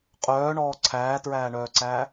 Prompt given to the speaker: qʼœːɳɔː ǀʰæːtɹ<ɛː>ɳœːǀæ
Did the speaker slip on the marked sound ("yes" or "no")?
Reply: yes